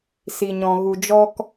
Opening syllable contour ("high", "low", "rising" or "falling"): low